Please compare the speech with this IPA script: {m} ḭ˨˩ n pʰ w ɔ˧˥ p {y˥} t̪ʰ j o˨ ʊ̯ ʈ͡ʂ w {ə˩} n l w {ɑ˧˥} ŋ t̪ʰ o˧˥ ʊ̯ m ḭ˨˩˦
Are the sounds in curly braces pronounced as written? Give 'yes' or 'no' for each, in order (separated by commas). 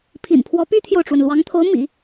no, yes, yes, yes